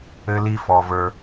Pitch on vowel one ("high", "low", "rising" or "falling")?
high